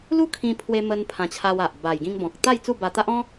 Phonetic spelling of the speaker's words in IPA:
lu˦kʰĩ˧pʰwe˧ mə˧n pʰã˧t͡ɕʰa˧wa˨ʔ ba˨˩jɡĩ˧ŋbɔ̃˨k̚ t̪a˥˧j t͡su˥˧ba˧t̪a˦ʔ ɔ̃˦

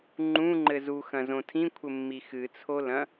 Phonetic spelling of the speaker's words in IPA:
ŋ͡ǃũŋ͡ǃɘ zuxɐ̃zõ tʰĩkʷʰɘmːi xɨt͡sʰolɐ̃

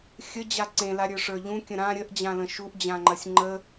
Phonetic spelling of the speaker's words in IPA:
xʲə d͡ʑaǀẽla ɾʲə˞ʂə˞ʎũkʲə̃ ɾã ɾʲəʔd͡ʑãlə̃ ʃuʔd͡ʑãŋ͡ǃɐsʲ ŋ͡ǃə

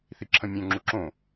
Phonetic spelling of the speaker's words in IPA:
θiǁʰə̃mʲœ̃ ŋ͡ǁuǁõ

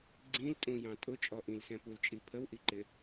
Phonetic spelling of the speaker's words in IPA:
ɡ͡ǀĩltʼũjɑ̃ tʼʊt͡ʃʼɔ ʔĩlsɛ̃pult͡ʃʼi pʰəwʔiǃɪ

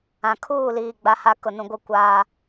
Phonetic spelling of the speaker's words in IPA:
ã˨kʰuː˦˨liː˨ ɡ͡ba˦ha˦ kʊ˨nũ˨ɡʷɪ˦˨ kʷaː˦

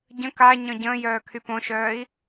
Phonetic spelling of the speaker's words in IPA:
ɟə̃ ka ɲœ̃ɟə̃ːjœː kʰypõʃœːi̯

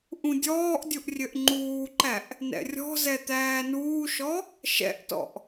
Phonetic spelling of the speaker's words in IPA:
ʔũdʲɔːʔdʲuʔ rʲøʔŋ͡ǃuːǃæʔ | nɛ̰rʲɔ̤zɛ t̪æːnuːʃɔ | ʃɛ̰ʔtɔ̰ʔ

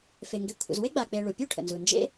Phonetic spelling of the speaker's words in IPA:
fe˩ŋɡe˨ kʷʰə̰˨z we˥ɡ͡ba˨k͡pe˨ ɭu˩pʲu˥ʈʰə̰˩nzu˩ nd͡ʒḛ˦

